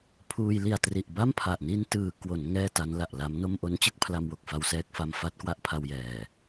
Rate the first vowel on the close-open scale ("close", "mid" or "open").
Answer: close